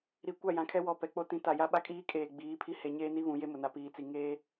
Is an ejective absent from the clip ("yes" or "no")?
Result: no